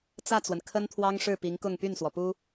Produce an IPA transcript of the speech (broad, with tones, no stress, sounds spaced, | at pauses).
t͡s ä˥˩ t͡s w ə˩ n kʰ ə˥ n t̪ʰ w ɑ˥ ŋ ʂ ɻ̩˥˩ p i˧˥ ŋ k ʊ˥˧ ŋ p y˥˩ n s w ɔ˩ p u˥